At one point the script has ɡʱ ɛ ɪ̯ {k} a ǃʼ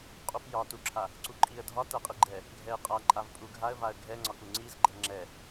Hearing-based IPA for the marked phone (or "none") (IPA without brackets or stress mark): qʼ